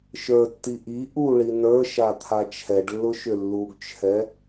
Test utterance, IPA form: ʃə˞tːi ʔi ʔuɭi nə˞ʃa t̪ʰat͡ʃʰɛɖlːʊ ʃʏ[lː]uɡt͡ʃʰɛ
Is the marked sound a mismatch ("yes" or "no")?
no